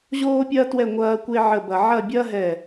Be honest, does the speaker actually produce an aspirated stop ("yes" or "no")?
no